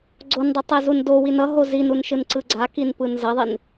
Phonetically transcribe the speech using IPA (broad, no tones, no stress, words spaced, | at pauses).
ɡ͡ǀondˤetˤɛzun dowin ʌɦo zinunʃɯnǀɯ ɡ͡ǀakinpɯn zʌðˤin